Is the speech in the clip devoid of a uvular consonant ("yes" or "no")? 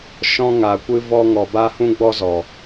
yes